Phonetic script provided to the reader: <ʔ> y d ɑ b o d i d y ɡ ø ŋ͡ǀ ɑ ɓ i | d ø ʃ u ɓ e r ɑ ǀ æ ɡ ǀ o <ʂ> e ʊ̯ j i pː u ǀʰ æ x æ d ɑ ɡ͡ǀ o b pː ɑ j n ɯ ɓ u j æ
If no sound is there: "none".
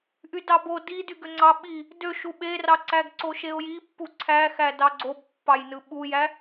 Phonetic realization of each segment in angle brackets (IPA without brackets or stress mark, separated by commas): ʔ, ʃ